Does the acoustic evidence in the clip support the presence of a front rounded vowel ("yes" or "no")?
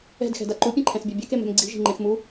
no